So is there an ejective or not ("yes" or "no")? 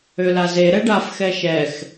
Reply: no